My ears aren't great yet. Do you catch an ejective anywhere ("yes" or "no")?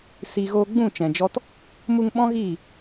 no